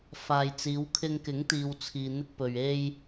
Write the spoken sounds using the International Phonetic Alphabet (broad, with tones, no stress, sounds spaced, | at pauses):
f aː˨ j t͡s iː˨˧ w kʰ ɪ˧ ŋ k ɪ˨˥ ŋ t̪ iː˨ w t͡sʰ iː˨ n̪ ɪ˧ k̚ p ɵ˨ ɥ e˧ j